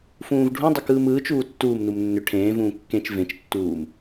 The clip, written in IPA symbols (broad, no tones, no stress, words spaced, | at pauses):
fũːvɖʱũdˤʏ kɯːmɯːt͡ʃuː tːuːmnum nːʏ ʈʰẽːvũː kːẽt͡ʃ vẽt͡ʃtːuːm